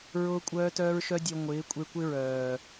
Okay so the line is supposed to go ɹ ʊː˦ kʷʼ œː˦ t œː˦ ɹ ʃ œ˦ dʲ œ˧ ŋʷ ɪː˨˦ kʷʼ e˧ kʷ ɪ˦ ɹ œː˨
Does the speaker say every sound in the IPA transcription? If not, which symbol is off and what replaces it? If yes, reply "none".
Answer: none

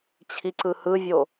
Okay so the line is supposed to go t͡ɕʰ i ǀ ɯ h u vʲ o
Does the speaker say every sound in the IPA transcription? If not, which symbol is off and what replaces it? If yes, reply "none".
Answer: u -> ɯ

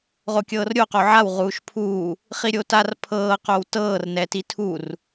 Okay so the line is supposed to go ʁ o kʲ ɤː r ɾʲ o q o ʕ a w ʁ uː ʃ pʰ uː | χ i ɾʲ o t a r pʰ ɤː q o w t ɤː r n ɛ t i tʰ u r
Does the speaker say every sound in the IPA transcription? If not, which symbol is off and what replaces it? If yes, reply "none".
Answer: none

